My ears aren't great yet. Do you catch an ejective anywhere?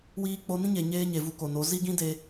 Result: no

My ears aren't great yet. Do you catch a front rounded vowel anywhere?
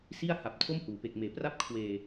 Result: no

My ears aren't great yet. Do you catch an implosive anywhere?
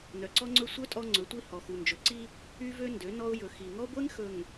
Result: no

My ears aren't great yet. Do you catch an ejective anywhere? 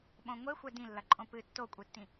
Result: yes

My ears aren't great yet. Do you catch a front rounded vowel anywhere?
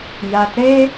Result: no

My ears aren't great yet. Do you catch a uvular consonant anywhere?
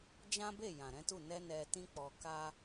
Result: no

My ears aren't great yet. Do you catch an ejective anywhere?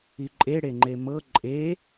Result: yes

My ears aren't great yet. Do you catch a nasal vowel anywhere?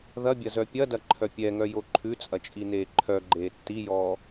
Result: no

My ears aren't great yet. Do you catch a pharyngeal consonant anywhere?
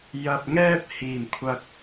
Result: no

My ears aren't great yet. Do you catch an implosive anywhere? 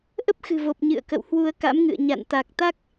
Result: no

